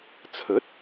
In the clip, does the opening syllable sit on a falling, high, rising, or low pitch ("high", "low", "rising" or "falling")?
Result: rising